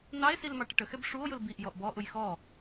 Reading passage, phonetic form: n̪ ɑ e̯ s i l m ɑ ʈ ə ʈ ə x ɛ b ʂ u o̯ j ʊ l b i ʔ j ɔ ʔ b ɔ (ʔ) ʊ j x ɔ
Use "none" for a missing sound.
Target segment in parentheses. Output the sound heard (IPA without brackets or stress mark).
ʔ